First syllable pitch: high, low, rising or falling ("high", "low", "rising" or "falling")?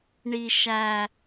low